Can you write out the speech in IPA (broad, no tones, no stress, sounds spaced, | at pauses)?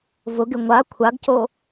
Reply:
v ʊ ɡ ɪ ŋʷ a kʷʰ a ɡ c o